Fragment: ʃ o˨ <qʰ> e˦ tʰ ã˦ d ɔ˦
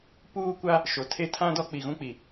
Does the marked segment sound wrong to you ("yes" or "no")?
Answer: yes